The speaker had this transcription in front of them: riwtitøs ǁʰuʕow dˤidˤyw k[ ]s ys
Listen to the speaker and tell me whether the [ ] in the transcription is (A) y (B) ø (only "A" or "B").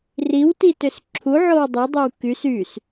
A